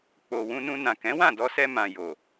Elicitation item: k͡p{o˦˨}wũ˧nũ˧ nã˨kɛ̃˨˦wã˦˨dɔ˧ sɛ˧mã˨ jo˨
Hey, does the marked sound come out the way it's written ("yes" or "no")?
no